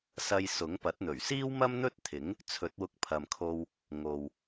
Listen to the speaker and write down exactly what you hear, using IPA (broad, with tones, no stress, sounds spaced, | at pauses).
s ɐ˧ j s ʊ˨˥ ŋ p ɐ˨˥ t̚ n̪ ɵ˨˩ ɥ s iː˥ w m ɐ˥ m n̪ ɵ˥ t̚ t̪ʰ ɪ˨˥ ŋ | t͡sʰ ɵ˨˥ t̚ w ʊ˧ k̚ pʰ ɐ˨ m kʰ o˧ w | ŋ o˨ w